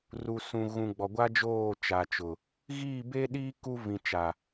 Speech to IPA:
r u˨ s ũ˨ ɣ ũ˨ ɡ͡b ɔ˨ ɡʷ a˦ d͡ʒ oː˦˨ t͡ʃ a˨ t͡ʃ ʊ˨ | ɣ iː˦˨ b e˦ ɗ iː˦ k u˦ v ĩ˨ t͡ʃ a˨

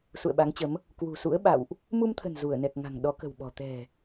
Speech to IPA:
s ṵ˧˨ ə̯ ɓ a˨˦ ŋ t͡ɕ ə˨˦ m | k w ṳ˨˩ s ṵ˧˥ ə̯ ɓ a̰˧˨ w ʔ | m u˧ m t̪ʰ ə̤˨˩ n z u˧˩ ə̯ n ɛ˨˩ k̚ ŋ a̤˨˩ ŋ ɗ ɔ˨˦ k ə̤˨˩ w ɓ ɔ̤˨˩ t̪ ɛ̤˨˩

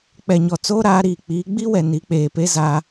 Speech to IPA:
k͡p ɛ˨ ɲ ɔ˨ t͡s oː˦ ɾ aː˨˦ ɾ iː˨ k͡p iː˨˦ ɡ͡b i˦ w ɛ˨ n i˨˦ k͡p eː˨ p e˦ z aː˦

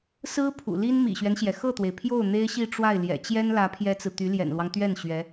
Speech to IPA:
s ɹ̩˥ pʰ ṵ˨˩ l i˥ n m ḭ˨˩ ɕ ɥ ɛ˦ n ɕ j ɛ˩ x ɤ˥˩ t̪ w e˩ ɪ̯ pʰ j o˥˩ ʊ̯ n̪ e˥ ɪ̯ ɕ i˥˧ ʈ͡ʂ w a˥˩ ɪ̯ l j ɛ̰˨˩ t͡ɕ j ɛ˥ n l ä˧˥ pʰ j ɛ˥ t͡s ɹ̩˨ t̪ y˧˥ l j ɛ̰˨˩ n l w ɑ˦ ŋ t̪ ɥ ɛ˥˩ n ɕ ɥ ɛ˧˥

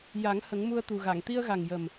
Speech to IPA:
j a˨˩˦ ŋ h ə˨˩˦ ŋ m u˧ ə̯ t̪ u˨˩ ɣ a˨˩˨ ŋ t̪ i˧ ə̯ ɣ a˨˩ ŋ j ə˨˩ m

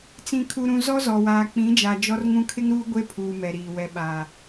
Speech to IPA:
t͡s ĩ˨ kʰ u˨ ɾ ũ˨ z ɔ˦ z ɔ˨ w aː˨ k͡p ĩ˨˦ d͡ʒ a˨ d͡ʒ ɔ˦ r ŋ ũ˦ kʰ ɪ˦ ŋ ɾ uː˦ ɡʷ e˦ pʰ uː˨ m ɛ˨ ɾ iː˨ w ɛ˨ ɓ a˨

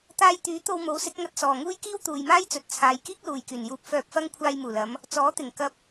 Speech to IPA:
t̪ aː˥ j t̪ yː˨˥ t̪ o˧ w m o˨˥ w s ɪ˨˥ k̚ ŋ ɐ˧ t̚ s ɔː˨ ŋ uː˥ j k iː˥ w t̪ uː˨ j m aː˥ j t͡s ɵ˨ t̚ t͡sʰ aː˨˧ j k iː˥ k̚ l uː˨ j k yː˨˩ n j uː˧ p̚ f œː˧ p̚ f ɐ˥ ŋ kʷʰ aː˧ j m uː˨˩ l ɐ˨˧ m | t͡s ɔː˨˥ t̪ ɪ˨˩ ŋ k ɐ˧ p̚

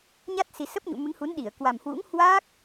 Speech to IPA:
ɲ a˦˥ t̚ s i˨˩ s ə˦˥ p̚ ɲ ṵ˧˨ m ɨ˨˦ ŋ h u˨˦ n ɗ i˧˩ ə̯ k w a˨˩ m h w ṵ˧˥ ŋ h w aː˦˥ k̚

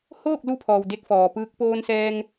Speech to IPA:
h oː˥˨ k̚ l u˧ pʰ ɔː˩ w d e˧ k̚ f ɔː˩ p ɯː˧˥ k̚ p oː˧ n s ɛː˧ ŋ

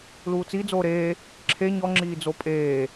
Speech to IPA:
l uː t͡s i d͡z oː ɾ eː | ǁʰ e ɲ ɔ ŋ͡ǁ iː d͡z o pʼ eː

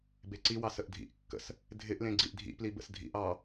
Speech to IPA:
b e ǀ i w ɑ s ə ʔ dʱ ḭ ʔ kː ə̰ s | dʱ ɪ ʔ l ẽ ɡ͡ǀ i ʔ dʱ ḭ p l i b ə̰ s dʱ ḭ ʔ ɑ

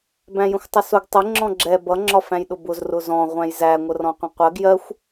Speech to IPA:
b æ̃ j ə̃ xʷ tˤ ə s ʊ ɡ tˤ ɪ ŋ͡ǁ ɔ̃ ɡ͡ǁ ɛ b ʌ ŋ͡ǁ ɒ f æ̃ j ɗ ʊ b ʊ z r ʊ z ɔ̃ ʁʷ æ̃ j z æ ŋʷ ə r ɔ̃ qʷ ə̃ qʷ ɜ ɡ j ɜ xʷ

